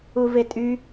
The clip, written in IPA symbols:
u v e tʼ y

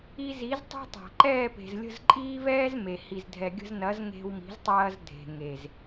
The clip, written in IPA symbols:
i˧ z i˨˦ z tˤ e̤˦ tˤ a̤˨ ǃ ɛː˦˨ p e̤˨ z lʲ ə̤˦˨ z ǃʼ iː˦ v ɛː˦ z m e˨ h i˨ z dʱ ɛ˨ ɡʲ ə̤˧ z n ɐ˨˦ z ŋ e̤˧ w m i̤˨˦ z tˤ ɐː˧ z dʱ e̤˨ ŋ e˨ z

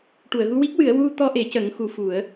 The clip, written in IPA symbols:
ʈ u˨˩˨ ə̯ ɣ u˧ w i˦˥ k̚ w ɨ˨˩˦ ə̯ w u˧ t̪ ɔ˧ ʔ e˨˩˦ c ə˨˩˦ ŋ x u˧˥ f u˨˩˦ ə̯

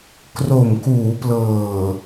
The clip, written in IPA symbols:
k r o˨˩ m k uː˩˦ p l ɤː˨˩

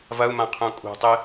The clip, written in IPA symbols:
v ɐ u̯ m ã qʰ ũ kʼ ṳ tˤ ɨ

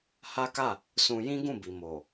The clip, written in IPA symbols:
h a˦ k a˦˨ | s ũ˧ j ĩ˦ ɡ ũ˦˨ b i˨ m o˨

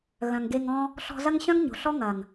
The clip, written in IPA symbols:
ɣ œ̃˨ ŋ ɡ e˧ ŋ ɔ̃˦ | ɬ ɔ̤˧ z ɐ˦ ŋ ɕ œ̃˦ ŋ ɲ o̤˨ ɬ ɔ˦ ŋ ɐ˨ ŋ

